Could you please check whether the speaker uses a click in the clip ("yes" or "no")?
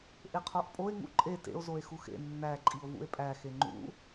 yes